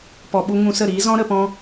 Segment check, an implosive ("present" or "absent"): present